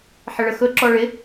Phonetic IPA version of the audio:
ħ ɪ ɭ ə x ɵ ǁ ɔ ɭ ɪ

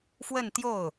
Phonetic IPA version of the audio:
f w ə˥˧ n t̪ j o˥˩ ʊ̯

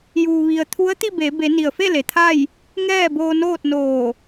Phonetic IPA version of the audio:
j uː˩ ʋ i˩ ə̯ t̪ʰ u˧˥ ə̯ t̪ i˥˨ b e˩˧ b e˩˧ n i˩ ə̯ f e˥˨ l e˩ t̪ʰ a˥˨ j | ŋ ɛː˥˨ b oː˧ n oː˥˨ t̚ n oː˧˩

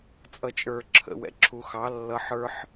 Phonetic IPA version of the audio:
t͡sʼ ʌ t͡ʃʼ ə˞ ǁʰ ə̰ w ɛ̰ ǁʰ u x ɑ lː ʌ ħ ə˞ ħ

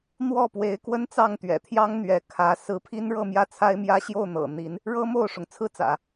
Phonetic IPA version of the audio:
n̪ w ɔ˥˩ p w e˧˥ ɪ̯ k w ə˥ n t͡s ɑ˥˩ ŋ t̪ ɥ ɛ̰˨˩ t̪ʰ j ɑ˥ ŋ n̪ ɥ ɛ˧˥ kʰ ä˧˥ s ɹ̩˧˥ pʰ i˥ n ɻ ɤ˥˧ m j ä˥˩ t͡sʰ a˥ ɪ̯ m j ä˥ ɕ j o˥˩ ʊ̯ n̪ ɤ̰˨˩ n̪ i˧˥ n | ɻ ɤ˥ m o˥˩ ʊ̯ ʂ ʊ˩ ŋ t͡sʰ ɹ̩˥ t͡s ä̰˨˩˦

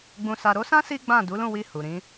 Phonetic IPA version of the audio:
ɡ͡b ũ˨ s a˨ ɾ o˧ s ã˦ s i˦ ɡ͡b ã˦˨ d u˨˦ l ũ˦˨ w i˧ h u˨ ɾ ĩ˨˦

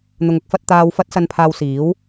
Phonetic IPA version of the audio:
n̪ ʊ˧ ŋ ʊ˨˥ k̚ f ɐ˥ t̚ t̪ aː˧ w f ɐ˥ t̚ s ɐ˧ n pʰ aː˧ w s iː˨˥ w

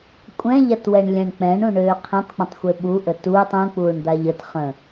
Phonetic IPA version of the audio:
kʷʼ ɛ̃ ʎ a t w ɛ ɳ lʲ ɛ̃ ɳ k͡p ɛ̃ ɳ ũ ɳ øː qʰ ẽ tˤ k͡p ə̃ tˤ xʷ e ɓ u ʔ ə t uː tˤ ũ k͡p uː ɳ d̪ a ʎ ə t χ ə̃

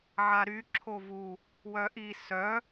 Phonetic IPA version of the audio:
ʕ a ɾ y ǁʰ o v u | w œ ʔ i s œ

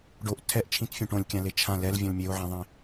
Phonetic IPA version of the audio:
ɖ o ʔ tʰ ɛ ʔ t͡ʃʰ ĩ t fʲ ũ ʈ õ lʲ kʲ ã l e t͡ʃʰ ã l ɛ l vʲ õ l mʲ e o̯ ʕ ẽ ðˤ ẽ

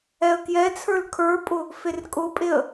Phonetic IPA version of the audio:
ɛ ə̯ k j ɛ t͡sʰ ə˞ l kʰ ə˞ pʼ ʊ | f e r kʼ ʊ pʼ e ə̯

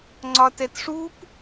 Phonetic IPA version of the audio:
ŋ͡ǀ ɒ t ɛ t ʂ u p

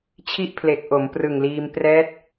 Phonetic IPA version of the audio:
t͡ɕʰ i˥˩ ʔ pʰ l e˨˩ k̚ ʔ o˩˦ m p r ɯ˨˩ ŋ l iː˧ m p r ɛː˦˥ t̚

